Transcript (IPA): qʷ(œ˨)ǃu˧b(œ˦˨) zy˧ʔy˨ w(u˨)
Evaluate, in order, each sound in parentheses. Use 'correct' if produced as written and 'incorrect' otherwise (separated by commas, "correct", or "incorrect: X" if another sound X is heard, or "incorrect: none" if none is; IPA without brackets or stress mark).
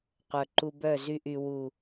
correct, correct, correct